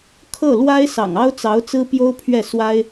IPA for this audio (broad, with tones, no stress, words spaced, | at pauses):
kʰɤ˥˩lwa˥ɪ̯ sɑ̰˨˩ŋɑ˥ʊ̯t͡sɑ˧˥ʊ̯ t͡sɹ̩˥pjo˥ʊ̯pʰɥɛ˥˩ swa˥ɪ̯